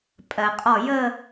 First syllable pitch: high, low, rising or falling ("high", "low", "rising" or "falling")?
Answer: low